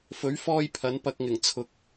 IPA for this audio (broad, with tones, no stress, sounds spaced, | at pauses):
f ɵ˨˥ ɥ f ɔː˧ j pʰ ɐ˨˥ n p ɐ˧ k̚ ŋ ɪ˨˩ ŋ t͡sʰ ʊ˨ k̚